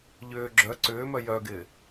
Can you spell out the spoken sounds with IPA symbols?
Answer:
ʎʏː ɡ͡ǁœ ǀʏːmœ jœɡɪː

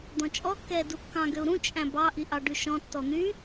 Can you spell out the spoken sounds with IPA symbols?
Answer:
d̪ɔ̃t͡ʃʼɔkːɛː dukːɑ̃ ɡøu̯ɾũ t͡ʃʼæ̃bɑ ʔiʔɑɖʉʃɔ̃ tːɔn̪y

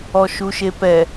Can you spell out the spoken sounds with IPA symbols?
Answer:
ɔʃuʃepɛ

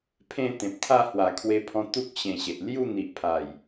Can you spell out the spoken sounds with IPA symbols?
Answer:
pʰẽ˥˧t̪ẽ˨p̚t̪ʰa˥˧ hwa˨˩kʰwe˧pʰɔ̃˧t̪u˦k̚ ɕẽ˧ɕe˨ʔ lju˥˧n̪i˨ʔpʰa˨˩j

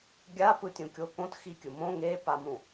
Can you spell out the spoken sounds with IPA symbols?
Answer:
ɡʲapɯ tʲũkʲokõt xikʲɯmõ ŋepamũ

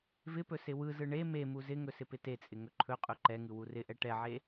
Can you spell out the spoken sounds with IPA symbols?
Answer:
vɪpɵ sɪwɯzɯ ɳe memu zɪŋɵ sɪpɪtet͡sʼɪ ŋɵǃʰɵqʼɵ ǃɛŋɯ wurɪʔɛ ʈɛʕe

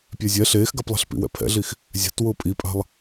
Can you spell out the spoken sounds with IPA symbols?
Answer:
pʲɛzʲɛ ɬeːxɡaplˠɛ̤ɬ pḭwɛ̰pʰɛ̰ɮix | zʲa̤t wʊːpʼipʼa̤lˠ

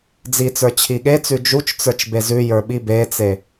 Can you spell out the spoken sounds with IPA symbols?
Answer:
d͡zit͡sə˞ t͡ɕʰiɠet͡sʉ d͡ʒut͡ʃt͡sə˞t͡ʃ bezʉjə˞ ɓibet͡se

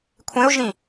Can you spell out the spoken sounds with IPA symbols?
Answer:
kʷʰẽʊ̯ʒĩ

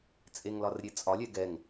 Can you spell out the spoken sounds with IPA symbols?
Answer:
t͡sʼeŋlɒrɾʲe t͡sʼɒlʲɛ ɡɛŋ

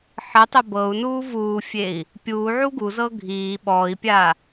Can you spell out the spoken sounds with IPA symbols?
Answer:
ħətˤə bɤu̯nuː vuːfʲei̯ | pʲuːʕu ɡuzɤ ɡʱiː ɓɔːi̯pʲa

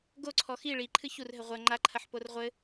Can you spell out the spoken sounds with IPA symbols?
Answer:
ɡoǀʰɔ xi ɭiǃʰɨ çurɦɘ ʁʷɐ ŋ͡ǃaǃʰɐħpor ʁʷɘ

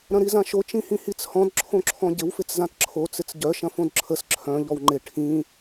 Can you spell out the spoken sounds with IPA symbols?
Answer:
ɾɐ̃ɾizãʃo t͡ʃĩhĩhit͡shɔ̃d ǁʰõǁʰɔ̃ɟɪw fɪt͡szãtǁʰo t͡sɪt͡sɟœ ʃɐ̃fõdǁʰəs ǁʰœ̃ ʎɔwŋ͡ǃɪ ʈʰĩ

